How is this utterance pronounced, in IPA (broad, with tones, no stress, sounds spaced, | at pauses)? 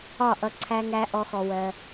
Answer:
ɒ˦˨ ʔ ʌ˧ ǀʰ æ˦ ŋ æ˦ ʔ ɔ˦ x ɔ˧ w ɜ˧